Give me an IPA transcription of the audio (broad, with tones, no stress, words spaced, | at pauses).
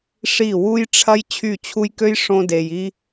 ʂi˦˨ wu˦jʈ͡ʂʰɐ˦j t͡ɕʰy˦˨t͡ɕʰu˦jkø˦j ʂõ˧ de˨ji˧